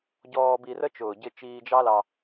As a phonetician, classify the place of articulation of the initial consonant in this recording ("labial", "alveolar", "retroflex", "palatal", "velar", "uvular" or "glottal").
palatal